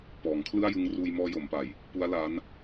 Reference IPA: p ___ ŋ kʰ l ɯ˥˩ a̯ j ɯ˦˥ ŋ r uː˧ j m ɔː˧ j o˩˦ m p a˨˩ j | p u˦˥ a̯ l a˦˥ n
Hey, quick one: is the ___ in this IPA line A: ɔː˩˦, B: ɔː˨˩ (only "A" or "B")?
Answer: A